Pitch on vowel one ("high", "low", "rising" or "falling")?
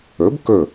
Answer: rising